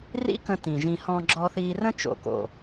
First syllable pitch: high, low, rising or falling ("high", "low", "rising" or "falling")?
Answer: high